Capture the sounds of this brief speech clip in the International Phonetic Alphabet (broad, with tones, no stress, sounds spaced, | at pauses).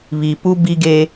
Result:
β i˨ p u˦ b i˦ ɡ e˦